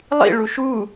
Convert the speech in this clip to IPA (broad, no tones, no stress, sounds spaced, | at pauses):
lˠ ḭ ɭ u ʃ u